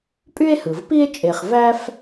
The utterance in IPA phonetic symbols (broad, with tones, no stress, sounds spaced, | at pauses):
pʼ y˥ e̯ h ɯ˩ v p i˥ e̯ t͡ʃʼ e˨ χ v æ˥ f